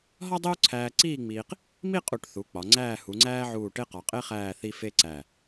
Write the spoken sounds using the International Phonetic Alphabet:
ɦ ɒ˥ dˤ e˥ u̯ ǀʰ æː˧ ǀ iː˥˧ ŋ͡m iː˧ q | m i˥˧ qʼ u˧˩ ʈ θ u˩˧ k͡p ɒ˩˧ ŋ͡ǀ æː˥˧ h u˩˧ ŋ͡ǀ æː˥ ʕ uː˧˩ ʈ e˥ q ɒ˩˧ qʼ e˥ χ æː˥˧ θ i˥ f e˥ ǀ æ˧˩

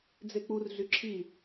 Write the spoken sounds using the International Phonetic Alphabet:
d͡z e k͡p u r ɮ y ǁʰ i

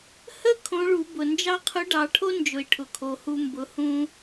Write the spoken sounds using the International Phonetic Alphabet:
h ə˥ kʰ õ˧˥ ɭ u˩˧ b ʊ˩ n d͡ʒ ɑ˥ qʰ ʊ˧˥ ɖ ɑ˩˧ ʈʰ o˥ n d͡ʒ ʊ˩ i̯ ʈʰ ʊ˩ kʰ o˩ h u˧ m b ʊ˩˧ h ũ˧

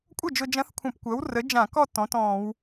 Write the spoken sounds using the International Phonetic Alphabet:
kʷʼ ə˥˩ d͡ʒ ʊ˧ d͡ʒ ɐ̃˧˥ θ kʷʰ ɐ̃˧˩˧ p kʷ ɐː˩˥ w r ə˩˥ d͡ʒ ã˧˩˧ k ɔ˥˩ t ɔ̃˩˥ t ɔ̃ː˧˩˧ w

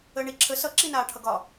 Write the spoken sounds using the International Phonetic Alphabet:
əː ɳ i ǁʰ ə s ʌ ǁ i n aː ʈʰ ʌ ɡ ɒ

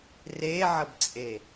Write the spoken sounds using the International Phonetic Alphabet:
r e ʕ ə b t͡sʼ e

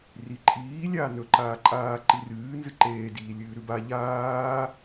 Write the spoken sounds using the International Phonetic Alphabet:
r i ǃʼ iː lʲ aː n ɵ ǃ aː ǃʼ aː ǃ i r ɨː n z ɨ ǃ eː d iː lʲ ɨː ɾ ʉ b a ʎ aː

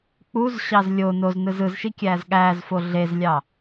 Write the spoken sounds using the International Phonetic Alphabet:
k͡p u z ɕ ɑ z lʲ o n o z n ɯ z ɯ z ʃ i kʲ æː z ɠ æː z f o ɮ e z lʲ ɑ

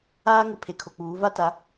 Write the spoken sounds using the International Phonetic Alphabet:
aː˦ ŋ ɪ˨ pʰ e˨ kʰ o˨ k͡p uː˨˦ v a˦ t a˨˦

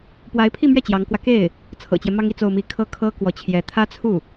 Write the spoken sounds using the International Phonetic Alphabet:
p w a˧˥ ɪ̯ pʰ i˥˧ m ɥ ɛ˥˩ t͡ɕ j ɑ˧˥ ŋ k w ä˧ k e˥˩ ɪ̯ | t͡sʰ ɤ̰˨˩ t͡ɕ j ɛ˦ m ɑ˥ ŋ i˥˧ t͡s o˥˧ ʊ̯ m i˥˩ kʰ ɤ˥ kʰ ɤ˥ k w ɔ˧˥ t͡ɕʰ j ɛ˧˥ t̪ʰ ä˥ t͡sʰ u˥˩

